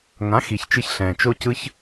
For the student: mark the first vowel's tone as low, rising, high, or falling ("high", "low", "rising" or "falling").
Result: rising